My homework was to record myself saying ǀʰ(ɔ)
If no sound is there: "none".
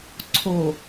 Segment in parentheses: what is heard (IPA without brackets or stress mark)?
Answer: o